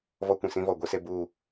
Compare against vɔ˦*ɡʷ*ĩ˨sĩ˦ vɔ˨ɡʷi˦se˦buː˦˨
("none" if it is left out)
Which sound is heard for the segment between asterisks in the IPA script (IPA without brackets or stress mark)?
kʷ